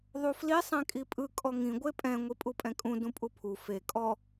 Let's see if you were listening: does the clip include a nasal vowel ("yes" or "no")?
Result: yes